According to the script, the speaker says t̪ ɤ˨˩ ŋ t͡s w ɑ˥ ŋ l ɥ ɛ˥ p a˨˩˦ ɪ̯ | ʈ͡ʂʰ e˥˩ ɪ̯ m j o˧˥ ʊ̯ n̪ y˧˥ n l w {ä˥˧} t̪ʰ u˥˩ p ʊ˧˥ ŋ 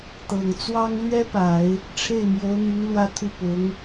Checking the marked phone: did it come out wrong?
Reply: yes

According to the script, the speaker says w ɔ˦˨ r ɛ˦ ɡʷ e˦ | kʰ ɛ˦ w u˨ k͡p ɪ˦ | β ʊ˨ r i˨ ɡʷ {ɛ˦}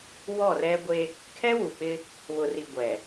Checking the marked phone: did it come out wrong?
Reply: yes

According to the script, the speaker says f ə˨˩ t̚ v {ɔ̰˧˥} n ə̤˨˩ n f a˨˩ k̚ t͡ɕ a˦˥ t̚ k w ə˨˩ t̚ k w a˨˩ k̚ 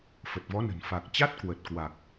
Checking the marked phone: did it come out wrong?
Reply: yes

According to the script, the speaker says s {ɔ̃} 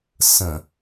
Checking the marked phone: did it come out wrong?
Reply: yes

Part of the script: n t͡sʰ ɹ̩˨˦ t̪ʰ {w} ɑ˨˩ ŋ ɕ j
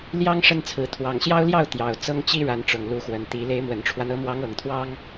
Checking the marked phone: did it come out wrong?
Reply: no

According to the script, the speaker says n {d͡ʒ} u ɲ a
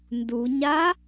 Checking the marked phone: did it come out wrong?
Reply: yes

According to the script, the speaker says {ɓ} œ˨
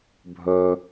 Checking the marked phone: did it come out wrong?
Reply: yes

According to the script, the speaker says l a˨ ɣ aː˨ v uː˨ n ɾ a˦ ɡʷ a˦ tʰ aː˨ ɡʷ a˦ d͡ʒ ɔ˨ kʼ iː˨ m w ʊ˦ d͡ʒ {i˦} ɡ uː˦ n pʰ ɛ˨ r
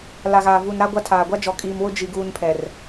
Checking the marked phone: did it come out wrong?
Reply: no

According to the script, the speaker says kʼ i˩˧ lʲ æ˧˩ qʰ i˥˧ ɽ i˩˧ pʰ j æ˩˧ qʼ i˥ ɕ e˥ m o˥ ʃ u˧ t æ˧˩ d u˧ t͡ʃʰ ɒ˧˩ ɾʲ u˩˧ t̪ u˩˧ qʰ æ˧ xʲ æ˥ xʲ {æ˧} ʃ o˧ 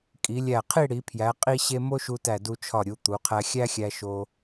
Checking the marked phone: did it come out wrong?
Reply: no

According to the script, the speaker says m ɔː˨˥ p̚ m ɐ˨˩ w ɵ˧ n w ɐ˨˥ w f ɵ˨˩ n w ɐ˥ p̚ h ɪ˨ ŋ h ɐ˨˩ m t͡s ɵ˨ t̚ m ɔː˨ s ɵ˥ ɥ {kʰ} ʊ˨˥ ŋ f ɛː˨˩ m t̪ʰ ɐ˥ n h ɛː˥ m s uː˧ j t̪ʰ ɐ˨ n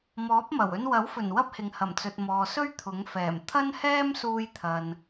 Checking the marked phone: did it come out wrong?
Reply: yes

